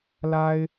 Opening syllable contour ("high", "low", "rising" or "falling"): high